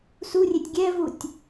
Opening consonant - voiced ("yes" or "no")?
no